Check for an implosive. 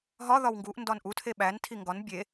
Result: present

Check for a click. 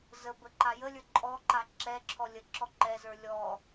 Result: present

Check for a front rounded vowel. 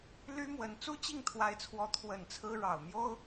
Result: present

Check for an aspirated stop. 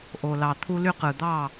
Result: present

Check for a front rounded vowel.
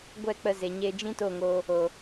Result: absent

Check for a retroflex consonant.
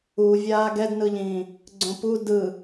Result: absent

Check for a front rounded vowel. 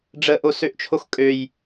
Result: present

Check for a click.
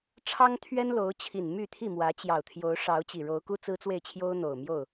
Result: absent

